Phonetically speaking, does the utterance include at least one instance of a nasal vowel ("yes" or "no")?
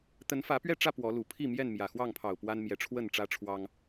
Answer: no